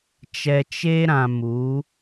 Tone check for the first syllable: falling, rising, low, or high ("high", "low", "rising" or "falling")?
low